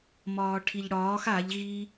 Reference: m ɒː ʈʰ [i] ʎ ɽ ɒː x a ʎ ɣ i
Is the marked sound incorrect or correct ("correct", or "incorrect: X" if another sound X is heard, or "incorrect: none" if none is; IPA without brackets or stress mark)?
correct